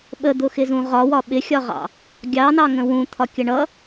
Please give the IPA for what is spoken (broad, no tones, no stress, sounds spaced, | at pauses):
ɓ ə d̪ ʊ x ɪ z ũ ʁ ɒ w ɒ ɓ ɪ xʲ ɒ ʁ ɑ̰ | ɡʲ ɑ n ɑ ŋ ə̃ w ũ t̪ʰ ɒ kʲ ə ɳ ʌ